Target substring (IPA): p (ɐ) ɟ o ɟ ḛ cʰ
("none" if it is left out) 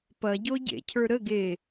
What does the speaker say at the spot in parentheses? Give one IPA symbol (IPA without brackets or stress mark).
ɐ